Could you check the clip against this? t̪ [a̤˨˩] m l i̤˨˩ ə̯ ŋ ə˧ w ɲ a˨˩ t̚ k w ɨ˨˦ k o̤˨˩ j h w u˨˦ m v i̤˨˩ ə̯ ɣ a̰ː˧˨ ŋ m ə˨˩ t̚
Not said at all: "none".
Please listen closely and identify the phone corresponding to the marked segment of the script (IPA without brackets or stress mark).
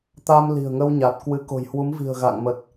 a˧